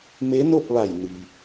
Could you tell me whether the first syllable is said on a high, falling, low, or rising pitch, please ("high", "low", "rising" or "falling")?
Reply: rising